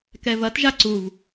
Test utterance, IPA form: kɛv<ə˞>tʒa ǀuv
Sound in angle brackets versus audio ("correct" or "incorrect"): incorrect